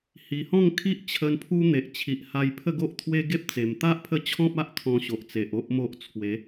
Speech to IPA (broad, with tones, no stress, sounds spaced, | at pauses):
h i˨˩ h ɔ̃˥˧ ŋ kʰ i˦ ʔ t͡ɕʰ ə˧ n pʰ u˦ n̪ e˨ ʔ t͡ɕʰ i˨ ʔ h a˧ j pʰ ə˥˧ ɡ o˦ ʔ t̪ʰ w e˦ ɡ e˦ p̚ t͡s e˨˩ m t̪ a˦ ʔ pʰ ə˦ t͡ɕʰ ɔ̃˦ p̚ a˦ ʔ kʰ ɔ̃˧ ɕ o˨ ʔ t͡s e˨ ʔ o˦ ʔ m o˦ ʔ t͡sʰ w e˨˦